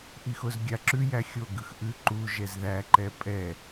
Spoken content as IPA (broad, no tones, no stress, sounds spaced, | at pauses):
ʔ i x o z ɡʲ a ǁ ʉ j æ xʲ o ɡ ɯ x ʔ ʉ ǃ u ʒ ɛ z ð æ ǃ ɛ pʼ ɛ